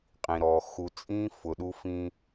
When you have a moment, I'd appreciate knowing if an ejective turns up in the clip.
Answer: yes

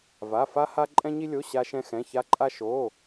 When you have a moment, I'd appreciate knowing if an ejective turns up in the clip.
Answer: yes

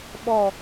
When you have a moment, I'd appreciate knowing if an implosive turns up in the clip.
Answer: yes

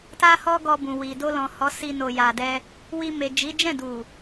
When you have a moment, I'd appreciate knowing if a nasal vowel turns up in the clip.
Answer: yes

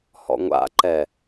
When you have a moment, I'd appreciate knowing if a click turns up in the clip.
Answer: yes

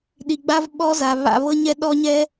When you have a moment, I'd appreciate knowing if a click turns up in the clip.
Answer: no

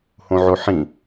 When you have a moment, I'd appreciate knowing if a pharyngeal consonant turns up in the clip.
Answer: yes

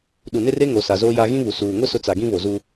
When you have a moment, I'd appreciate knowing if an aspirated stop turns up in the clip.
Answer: no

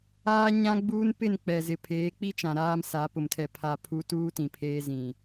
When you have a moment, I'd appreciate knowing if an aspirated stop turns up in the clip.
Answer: yes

